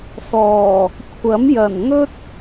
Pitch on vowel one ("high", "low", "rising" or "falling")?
low